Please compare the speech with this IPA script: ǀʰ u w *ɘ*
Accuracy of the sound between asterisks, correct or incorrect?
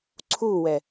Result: incorrect: ɛ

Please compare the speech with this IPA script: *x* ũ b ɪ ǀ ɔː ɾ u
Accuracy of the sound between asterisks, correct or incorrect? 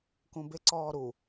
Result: incorrect: k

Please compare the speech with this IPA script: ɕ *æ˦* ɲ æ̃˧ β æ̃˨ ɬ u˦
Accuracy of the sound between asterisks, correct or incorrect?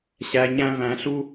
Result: incorrect: æ˨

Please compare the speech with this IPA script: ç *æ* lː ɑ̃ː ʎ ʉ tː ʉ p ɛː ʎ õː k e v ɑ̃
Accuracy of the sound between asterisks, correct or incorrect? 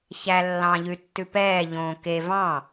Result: correct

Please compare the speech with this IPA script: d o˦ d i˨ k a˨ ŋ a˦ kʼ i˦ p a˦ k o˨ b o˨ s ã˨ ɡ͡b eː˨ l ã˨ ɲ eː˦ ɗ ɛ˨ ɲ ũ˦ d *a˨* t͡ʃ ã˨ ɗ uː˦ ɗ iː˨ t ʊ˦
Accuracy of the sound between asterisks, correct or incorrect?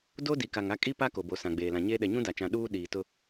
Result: correct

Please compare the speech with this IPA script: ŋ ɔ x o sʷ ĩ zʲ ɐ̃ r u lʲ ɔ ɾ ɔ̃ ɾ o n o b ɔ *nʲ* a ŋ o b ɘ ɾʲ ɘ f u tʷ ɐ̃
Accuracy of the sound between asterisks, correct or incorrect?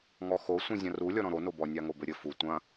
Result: correct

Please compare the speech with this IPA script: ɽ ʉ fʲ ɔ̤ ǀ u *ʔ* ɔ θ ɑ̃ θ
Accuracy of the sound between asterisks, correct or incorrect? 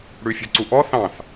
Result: correct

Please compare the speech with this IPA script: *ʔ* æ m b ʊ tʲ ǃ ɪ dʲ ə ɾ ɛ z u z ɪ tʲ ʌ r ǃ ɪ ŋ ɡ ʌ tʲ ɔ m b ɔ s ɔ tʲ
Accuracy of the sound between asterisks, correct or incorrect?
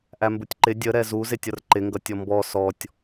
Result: correct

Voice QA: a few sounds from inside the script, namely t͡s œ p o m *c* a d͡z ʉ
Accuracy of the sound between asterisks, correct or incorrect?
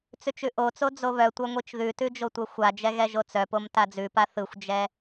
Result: incorrect: t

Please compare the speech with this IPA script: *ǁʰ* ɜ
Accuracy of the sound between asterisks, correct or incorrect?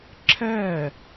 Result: correct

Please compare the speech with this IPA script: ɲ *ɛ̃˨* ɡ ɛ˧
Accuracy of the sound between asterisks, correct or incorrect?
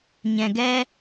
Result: correct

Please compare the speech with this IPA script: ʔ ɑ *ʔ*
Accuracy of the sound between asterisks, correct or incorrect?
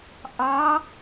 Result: incorrect: none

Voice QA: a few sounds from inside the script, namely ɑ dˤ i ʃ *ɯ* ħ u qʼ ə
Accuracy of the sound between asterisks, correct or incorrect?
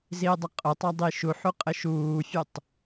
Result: incorrect: u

